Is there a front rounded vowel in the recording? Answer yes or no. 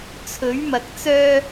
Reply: yes